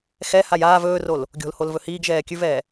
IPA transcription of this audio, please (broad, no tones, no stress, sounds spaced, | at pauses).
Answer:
x ɛ h a j aː v ɵː r o l | ɡʲ o̤ l h o l v ɵ h iː ɡ ʒ ɛː kʲ ʉ v ɛː